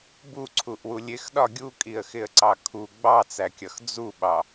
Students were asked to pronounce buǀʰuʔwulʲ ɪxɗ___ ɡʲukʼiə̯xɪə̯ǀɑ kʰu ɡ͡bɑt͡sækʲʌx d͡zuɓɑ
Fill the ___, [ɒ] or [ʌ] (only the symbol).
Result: ɒ